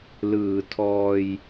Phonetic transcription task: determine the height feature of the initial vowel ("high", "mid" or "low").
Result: high